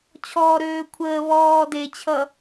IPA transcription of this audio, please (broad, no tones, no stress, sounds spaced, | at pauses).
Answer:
t͡ɕʰ ɔː ɾ øː kʷʰ əː β ɔː d e t͡ɕʰ ʌ